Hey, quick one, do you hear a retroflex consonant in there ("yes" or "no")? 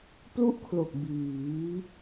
no